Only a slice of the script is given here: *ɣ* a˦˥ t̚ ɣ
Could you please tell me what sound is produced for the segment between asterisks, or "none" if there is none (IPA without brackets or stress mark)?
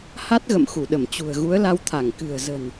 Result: h